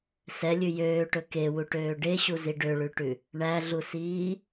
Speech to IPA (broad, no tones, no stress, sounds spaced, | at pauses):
s ɛ lʲ ʉ j øː ʈ ɵ k e w u ʈ øː ɖ e ɕ u z i ɖ ø ɭ ʉ ʈ ʉ | ɳ æ ɮ u s iː